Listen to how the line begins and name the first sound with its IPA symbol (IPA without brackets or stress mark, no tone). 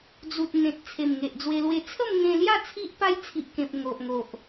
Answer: d͡z